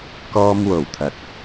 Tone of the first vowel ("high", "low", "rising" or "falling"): high